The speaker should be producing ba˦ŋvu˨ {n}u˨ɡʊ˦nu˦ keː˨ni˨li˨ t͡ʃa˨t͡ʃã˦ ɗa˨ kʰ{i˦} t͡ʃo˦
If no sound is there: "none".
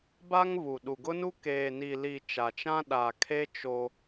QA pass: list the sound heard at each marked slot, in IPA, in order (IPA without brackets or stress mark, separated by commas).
ɗ, e˦